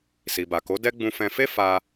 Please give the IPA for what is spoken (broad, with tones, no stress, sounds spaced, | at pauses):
s i˨ b a˨ k o˨˦ d ɛ˦ ɡ͡b ũ˧ f ɛ̃˧ f e˦ f a˧